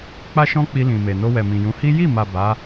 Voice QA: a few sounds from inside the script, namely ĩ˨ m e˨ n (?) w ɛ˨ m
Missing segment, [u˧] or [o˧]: o˧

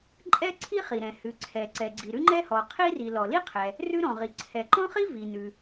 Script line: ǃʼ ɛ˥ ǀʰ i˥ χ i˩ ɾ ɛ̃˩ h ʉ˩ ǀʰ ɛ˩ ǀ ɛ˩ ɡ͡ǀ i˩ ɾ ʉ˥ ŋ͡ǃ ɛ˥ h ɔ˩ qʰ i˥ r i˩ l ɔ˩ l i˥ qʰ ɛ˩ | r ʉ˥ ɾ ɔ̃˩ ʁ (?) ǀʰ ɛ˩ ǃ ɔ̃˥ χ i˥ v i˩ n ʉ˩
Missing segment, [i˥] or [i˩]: i˩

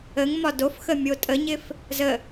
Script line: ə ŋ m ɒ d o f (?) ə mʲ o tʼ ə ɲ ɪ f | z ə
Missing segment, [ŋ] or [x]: x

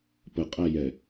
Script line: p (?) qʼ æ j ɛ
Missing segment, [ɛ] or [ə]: ə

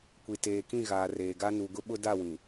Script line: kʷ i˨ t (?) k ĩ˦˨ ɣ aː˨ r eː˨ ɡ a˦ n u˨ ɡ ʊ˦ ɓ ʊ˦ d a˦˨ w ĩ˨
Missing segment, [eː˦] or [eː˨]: eː˨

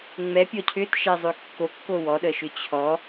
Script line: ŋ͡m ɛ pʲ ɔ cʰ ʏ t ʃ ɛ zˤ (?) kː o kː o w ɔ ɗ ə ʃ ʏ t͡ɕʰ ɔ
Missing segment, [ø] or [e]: ø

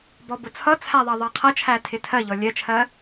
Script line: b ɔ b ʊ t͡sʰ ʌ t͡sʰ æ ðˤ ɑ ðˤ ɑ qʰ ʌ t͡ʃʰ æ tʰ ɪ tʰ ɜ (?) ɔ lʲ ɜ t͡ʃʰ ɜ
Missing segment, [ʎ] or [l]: ʎ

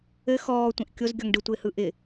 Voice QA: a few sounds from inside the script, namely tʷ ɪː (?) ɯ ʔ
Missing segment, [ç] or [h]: h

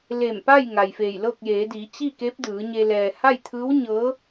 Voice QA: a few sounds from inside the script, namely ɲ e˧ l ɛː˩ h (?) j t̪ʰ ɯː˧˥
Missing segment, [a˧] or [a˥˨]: a˥˨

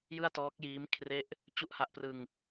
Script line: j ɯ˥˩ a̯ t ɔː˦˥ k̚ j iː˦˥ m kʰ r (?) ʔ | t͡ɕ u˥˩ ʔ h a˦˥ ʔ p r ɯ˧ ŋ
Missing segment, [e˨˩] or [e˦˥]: e˦˥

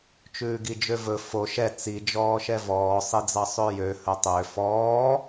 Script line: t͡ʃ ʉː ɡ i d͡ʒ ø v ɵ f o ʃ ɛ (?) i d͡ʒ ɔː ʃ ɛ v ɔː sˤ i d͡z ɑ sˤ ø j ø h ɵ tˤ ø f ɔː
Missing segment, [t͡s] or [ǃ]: t͡s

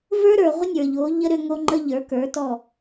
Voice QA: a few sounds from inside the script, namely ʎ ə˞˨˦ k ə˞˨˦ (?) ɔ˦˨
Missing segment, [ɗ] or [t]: t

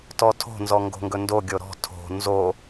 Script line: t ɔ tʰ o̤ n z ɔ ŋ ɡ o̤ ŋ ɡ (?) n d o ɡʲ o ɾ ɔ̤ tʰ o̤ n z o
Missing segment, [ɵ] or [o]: ɵ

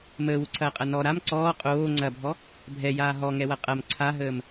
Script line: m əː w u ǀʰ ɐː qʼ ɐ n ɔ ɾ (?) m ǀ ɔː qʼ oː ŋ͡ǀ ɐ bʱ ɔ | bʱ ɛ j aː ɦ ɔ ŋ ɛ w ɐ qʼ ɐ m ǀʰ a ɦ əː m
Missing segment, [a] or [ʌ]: a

